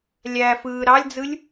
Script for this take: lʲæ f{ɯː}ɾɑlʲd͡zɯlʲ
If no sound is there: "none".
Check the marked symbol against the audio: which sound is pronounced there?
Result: ɯː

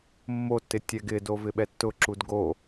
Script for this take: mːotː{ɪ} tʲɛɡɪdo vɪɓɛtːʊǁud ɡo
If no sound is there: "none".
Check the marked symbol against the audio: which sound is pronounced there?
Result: ɪ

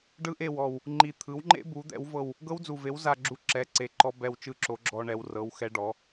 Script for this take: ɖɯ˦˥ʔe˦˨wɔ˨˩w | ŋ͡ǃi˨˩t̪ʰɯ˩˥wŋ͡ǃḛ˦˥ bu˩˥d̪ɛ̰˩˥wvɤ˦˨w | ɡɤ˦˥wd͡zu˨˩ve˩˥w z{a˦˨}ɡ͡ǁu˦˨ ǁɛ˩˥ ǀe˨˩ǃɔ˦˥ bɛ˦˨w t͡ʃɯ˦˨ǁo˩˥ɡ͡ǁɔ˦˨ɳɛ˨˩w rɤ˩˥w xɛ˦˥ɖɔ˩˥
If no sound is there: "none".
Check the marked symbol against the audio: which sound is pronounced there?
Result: a˦˨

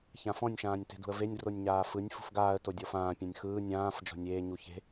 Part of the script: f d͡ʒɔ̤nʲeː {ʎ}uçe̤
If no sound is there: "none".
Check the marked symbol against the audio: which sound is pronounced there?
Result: ɲ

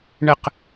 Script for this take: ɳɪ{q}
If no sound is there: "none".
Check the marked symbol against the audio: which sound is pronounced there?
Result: q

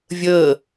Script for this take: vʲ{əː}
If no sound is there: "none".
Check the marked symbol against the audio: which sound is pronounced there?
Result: əː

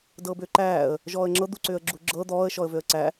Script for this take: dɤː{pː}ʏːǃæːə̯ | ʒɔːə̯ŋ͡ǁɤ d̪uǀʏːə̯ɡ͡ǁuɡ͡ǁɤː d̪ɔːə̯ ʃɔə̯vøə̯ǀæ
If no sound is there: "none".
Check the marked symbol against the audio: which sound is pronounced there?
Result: b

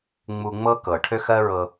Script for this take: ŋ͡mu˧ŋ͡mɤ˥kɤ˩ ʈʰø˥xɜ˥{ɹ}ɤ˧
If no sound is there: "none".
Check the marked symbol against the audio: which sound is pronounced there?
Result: ɹ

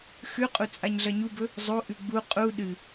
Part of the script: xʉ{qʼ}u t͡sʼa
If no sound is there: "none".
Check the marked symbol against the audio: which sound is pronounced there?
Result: qʼ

